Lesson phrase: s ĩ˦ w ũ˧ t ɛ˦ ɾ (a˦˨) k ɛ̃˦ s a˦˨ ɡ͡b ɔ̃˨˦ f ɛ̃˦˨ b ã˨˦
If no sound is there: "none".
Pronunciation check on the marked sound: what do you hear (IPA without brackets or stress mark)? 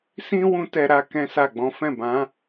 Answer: a˦